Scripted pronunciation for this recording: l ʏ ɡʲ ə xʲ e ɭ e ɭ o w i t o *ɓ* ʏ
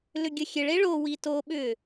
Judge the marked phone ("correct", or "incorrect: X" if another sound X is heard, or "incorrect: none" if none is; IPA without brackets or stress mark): correct